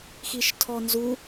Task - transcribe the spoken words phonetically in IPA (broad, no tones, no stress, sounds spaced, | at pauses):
x i ʃ tʰ ɔ n z u